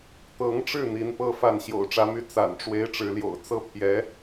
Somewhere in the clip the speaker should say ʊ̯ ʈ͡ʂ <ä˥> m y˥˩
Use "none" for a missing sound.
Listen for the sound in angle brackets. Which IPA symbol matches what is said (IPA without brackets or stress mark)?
ä˧˥